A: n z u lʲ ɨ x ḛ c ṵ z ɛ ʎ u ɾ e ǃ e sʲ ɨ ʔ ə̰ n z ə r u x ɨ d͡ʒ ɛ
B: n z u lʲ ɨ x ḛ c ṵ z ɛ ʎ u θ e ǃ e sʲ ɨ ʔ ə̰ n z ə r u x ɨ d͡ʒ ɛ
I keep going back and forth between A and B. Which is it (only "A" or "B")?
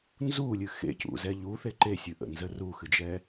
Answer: B